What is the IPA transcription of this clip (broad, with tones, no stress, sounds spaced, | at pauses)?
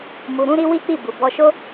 m u˨ ɾ ũ˧ ɾ i˧ w i˦ k͡p i˦˨ b u˨ b ɔ˧ ʃ o˦